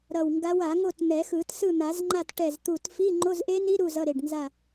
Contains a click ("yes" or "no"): yes